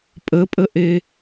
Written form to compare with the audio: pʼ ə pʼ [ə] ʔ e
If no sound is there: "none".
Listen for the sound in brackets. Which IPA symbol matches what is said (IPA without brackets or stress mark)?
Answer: ə